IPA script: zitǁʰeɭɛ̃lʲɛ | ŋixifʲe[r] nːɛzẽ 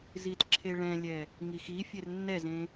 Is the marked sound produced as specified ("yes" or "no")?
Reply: yes